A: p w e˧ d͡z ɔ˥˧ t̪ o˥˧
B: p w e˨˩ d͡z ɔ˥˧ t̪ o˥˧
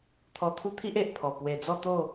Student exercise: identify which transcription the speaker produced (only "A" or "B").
B